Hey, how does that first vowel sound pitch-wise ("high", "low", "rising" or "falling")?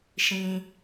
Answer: high